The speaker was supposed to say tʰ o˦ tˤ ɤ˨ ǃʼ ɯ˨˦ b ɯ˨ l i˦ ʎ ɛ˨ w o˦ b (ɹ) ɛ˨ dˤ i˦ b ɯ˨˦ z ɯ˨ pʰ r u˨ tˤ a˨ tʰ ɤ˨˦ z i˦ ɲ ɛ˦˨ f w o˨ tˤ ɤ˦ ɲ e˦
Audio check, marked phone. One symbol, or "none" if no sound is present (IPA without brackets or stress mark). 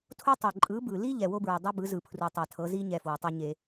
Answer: ɹ